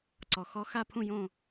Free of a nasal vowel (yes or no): no